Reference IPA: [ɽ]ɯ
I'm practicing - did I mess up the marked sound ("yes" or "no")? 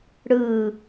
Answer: no